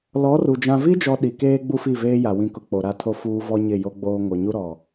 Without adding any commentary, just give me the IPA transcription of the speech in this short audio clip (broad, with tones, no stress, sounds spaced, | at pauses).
l ɔ˨˦ r u˨ d͡ʒ ã˨ v i˦ d͡ʒ ɔ˨ ɗ i˨ k eː˦ ɡ͡b u˦ f i˦˨ v eː˦ j a˨ w ĩ˨ k ʊ˨ k͡p o˨ ɾ a˦˨ tʰ o˦ f uː˦ v ɔ˦ ɲ ɪ˦˨ j o˦ ɡ͡b oː˦ ŋ o˨ ɲ u˦ ɾ ɔ˨